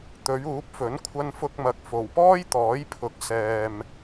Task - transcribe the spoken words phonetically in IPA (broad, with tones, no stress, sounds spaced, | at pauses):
t̪ ɵ˨˧ ɥ uː˨˥ p̚ f ɵ˨˥ n kʷʰ ɐ˧ n f ʊ˧ k̚ m ɐ˨˥ k̚ f o˨˩ w p ɔː˥ j t̪ ɔː˨˥ j pʰ ʊ˨˥ k̚ s ɛː˨ m